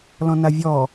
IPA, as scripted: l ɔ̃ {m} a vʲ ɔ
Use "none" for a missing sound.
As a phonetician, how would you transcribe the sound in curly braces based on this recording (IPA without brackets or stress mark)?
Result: n